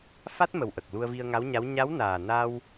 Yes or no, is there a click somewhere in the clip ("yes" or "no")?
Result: no